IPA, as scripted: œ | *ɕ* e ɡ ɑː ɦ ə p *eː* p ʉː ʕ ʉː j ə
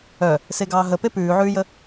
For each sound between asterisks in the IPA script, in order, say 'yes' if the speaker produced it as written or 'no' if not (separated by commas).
no, no